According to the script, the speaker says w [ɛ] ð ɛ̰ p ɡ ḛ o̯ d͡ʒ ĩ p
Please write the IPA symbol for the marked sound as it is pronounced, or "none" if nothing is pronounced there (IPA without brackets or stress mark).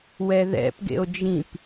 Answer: ɛ